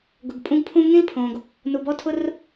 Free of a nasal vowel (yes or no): no